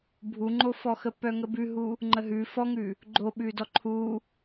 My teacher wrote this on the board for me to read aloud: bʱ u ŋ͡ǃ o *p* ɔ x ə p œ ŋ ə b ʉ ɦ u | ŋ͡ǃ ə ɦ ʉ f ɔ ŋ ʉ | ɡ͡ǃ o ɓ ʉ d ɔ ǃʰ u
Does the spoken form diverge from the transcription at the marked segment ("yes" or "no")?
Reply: yes